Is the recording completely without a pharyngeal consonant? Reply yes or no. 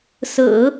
yes